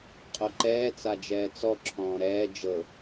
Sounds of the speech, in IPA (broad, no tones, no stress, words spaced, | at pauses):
qʼoǃɛː t͡sad͡ʒɛːt͡sɔ ǁʰɔ̃ːɾɛː d͡ʒɤ